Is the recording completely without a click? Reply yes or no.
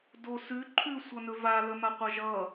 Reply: no